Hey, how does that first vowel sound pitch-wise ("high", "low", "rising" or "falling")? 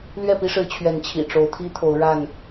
falling